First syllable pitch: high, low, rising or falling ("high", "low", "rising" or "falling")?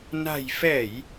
low